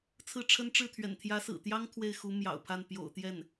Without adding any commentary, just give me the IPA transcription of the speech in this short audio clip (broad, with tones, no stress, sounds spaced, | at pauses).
t͡sʰ ɹ̩˥˩ ʈ͡ʂʰ ə˥ n ʈ͡ʂ ɻ̩˥˩ t̪ʰ ɥ ɛ̰˨˩ n t̪ʰ j ä˧˥ s ɹ̩˨˩ t̪ j ɑ˥ ŋ t̪ʰ w e˥˩ ɪ̯ x u˧˥ m j ɑ̰˨˩ ʊ̯ pʰ a˥˩ n p j o̰˨˩ ʊ̯ t̪ j ɛ˥˩ n